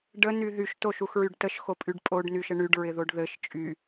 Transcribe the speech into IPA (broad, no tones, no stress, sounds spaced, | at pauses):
ɖ ə n y ð y ʃ t o ʃ u x ɹ y ɖ t ə ʃ x o pʼ y ɖ pʼ o ɖ n y ʃ ə ɳ y ɖ ɹ ɪ ð o ɖ ð ɘ ʃ t͡ʃʼ y